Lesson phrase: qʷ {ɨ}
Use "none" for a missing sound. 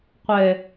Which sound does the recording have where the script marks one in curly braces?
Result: ɛ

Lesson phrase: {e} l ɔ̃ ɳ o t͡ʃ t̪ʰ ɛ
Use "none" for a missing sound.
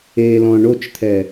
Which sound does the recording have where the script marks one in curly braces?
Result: e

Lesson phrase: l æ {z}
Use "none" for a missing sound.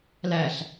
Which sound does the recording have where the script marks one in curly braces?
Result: ɬ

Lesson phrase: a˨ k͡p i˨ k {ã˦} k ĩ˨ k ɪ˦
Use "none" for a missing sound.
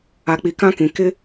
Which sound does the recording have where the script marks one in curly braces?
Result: ã˦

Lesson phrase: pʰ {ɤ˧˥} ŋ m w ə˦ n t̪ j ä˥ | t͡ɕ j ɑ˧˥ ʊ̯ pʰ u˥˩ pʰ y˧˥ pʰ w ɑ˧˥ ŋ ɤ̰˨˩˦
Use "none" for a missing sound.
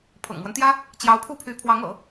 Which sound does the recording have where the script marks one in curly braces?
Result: ɤ̰˨˩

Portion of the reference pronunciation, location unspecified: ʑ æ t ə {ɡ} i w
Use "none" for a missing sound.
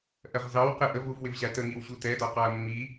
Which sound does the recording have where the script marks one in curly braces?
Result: ŋ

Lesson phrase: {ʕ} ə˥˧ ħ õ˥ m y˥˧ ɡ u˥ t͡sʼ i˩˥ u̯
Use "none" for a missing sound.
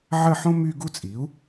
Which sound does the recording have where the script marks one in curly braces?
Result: ʕ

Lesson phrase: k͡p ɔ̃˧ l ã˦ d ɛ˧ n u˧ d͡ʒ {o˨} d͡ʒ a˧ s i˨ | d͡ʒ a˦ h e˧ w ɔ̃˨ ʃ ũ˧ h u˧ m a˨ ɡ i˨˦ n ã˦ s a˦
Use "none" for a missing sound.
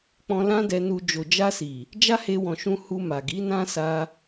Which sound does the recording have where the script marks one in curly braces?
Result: o˨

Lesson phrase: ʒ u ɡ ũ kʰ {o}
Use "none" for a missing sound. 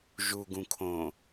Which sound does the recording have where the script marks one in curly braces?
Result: õ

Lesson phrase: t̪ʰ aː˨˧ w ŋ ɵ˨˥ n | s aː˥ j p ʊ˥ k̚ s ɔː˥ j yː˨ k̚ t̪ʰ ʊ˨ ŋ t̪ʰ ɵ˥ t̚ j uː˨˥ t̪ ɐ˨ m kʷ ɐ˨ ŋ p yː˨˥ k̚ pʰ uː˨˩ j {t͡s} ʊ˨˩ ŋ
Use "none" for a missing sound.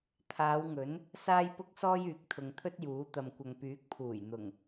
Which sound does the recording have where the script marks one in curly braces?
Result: n̪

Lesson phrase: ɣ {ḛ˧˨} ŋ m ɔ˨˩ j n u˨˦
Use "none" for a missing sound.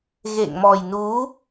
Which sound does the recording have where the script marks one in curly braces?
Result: ḛ˧˨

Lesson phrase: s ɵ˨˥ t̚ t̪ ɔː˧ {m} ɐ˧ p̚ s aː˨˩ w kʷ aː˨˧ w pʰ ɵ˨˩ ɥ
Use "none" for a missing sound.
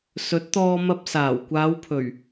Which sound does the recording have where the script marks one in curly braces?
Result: m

